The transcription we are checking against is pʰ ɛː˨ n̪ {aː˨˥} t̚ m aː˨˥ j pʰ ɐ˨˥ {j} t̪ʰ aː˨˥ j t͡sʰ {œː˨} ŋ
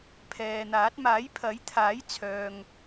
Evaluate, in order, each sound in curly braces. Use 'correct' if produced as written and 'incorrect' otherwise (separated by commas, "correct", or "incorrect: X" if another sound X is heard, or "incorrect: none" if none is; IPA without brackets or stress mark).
correct, correct, correct